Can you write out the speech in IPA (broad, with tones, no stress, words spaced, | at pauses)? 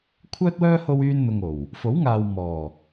kʷʰœː˥t̚wœː˥ ho˥wyː˥nn̪ʊ˧ŋ o˨˩w | fo˨˥wŋaː˨w mɔː˨˩